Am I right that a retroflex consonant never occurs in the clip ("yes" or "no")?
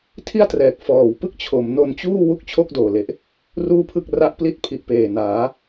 yes